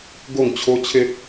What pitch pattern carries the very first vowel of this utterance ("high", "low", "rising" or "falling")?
falling